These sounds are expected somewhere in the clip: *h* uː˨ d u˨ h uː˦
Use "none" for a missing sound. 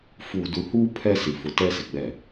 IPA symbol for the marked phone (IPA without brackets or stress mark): f